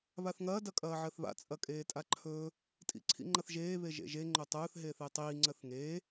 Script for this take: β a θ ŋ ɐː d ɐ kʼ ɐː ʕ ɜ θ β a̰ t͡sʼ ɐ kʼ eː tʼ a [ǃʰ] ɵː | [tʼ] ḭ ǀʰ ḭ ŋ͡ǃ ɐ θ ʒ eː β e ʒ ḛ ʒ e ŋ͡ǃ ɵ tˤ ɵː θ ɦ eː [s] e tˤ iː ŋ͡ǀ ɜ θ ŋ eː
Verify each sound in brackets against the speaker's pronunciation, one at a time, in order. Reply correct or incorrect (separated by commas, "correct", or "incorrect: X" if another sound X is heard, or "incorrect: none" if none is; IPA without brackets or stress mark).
correct, correct, incorrect: θ